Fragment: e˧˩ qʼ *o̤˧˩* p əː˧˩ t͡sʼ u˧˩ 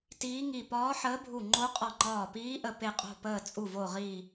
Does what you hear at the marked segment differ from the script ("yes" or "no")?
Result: no